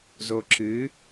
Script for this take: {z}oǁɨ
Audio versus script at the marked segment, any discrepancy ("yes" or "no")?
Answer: no